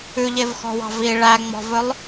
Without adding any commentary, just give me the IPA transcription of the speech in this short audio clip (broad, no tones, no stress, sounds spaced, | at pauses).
ʉ ʎ e v x ɔ̤ w ɑ̤ v i ɭ æ ŋ͡m ɔ̤ v ɵ lˠ